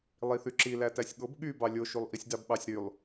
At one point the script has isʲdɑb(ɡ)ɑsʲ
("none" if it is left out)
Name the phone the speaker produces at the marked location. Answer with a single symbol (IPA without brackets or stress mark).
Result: ɓ